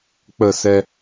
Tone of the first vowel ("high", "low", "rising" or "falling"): falling